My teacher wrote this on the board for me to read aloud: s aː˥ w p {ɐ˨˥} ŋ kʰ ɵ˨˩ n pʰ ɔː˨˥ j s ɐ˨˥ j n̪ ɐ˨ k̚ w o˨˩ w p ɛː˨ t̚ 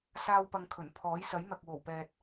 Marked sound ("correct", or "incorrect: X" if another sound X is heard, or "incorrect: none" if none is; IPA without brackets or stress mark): incorrect: ɐ˧